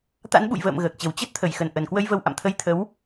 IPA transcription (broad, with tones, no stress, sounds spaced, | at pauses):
t̪ a̰˧˥ n ɓ ṵ˧˨ j v ə̰ː˧˨ m ɣ əː˨˩ k̚ t͡ɕ ə˨˩ w t͡ɕ ə˦˥ t̚ t̪ʰ ə˧˩ j x ə˨˩ n ʔ ə˨˩ n k w ə˧ j v ə˧ w ʔ a̰˧˨ m t̪ʰ ə˨˦ j t̪ʰ ə˨˦ w